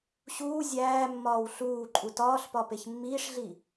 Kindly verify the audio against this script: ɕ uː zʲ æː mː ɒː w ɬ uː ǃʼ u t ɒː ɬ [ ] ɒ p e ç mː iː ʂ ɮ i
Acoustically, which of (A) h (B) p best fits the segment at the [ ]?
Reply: B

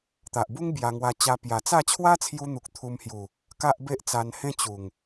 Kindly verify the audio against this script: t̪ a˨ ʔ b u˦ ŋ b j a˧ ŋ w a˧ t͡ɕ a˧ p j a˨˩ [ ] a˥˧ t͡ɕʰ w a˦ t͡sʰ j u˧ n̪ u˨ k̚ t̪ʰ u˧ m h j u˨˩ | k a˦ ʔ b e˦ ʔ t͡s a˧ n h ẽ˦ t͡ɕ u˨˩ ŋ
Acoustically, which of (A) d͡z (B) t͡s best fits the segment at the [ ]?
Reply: B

